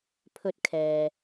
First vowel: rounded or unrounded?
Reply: rounded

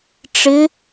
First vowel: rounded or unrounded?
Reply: unrounded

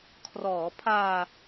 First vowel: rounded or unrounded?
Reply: rounded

